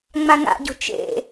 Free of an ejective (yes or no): yes